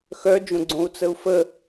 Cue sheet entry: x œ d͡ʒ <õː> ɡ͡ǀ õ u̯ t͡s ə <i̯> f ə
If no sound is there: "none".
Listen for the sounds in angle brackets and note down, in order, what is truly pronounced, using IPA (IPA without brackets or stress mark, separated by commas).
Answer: õ, u̯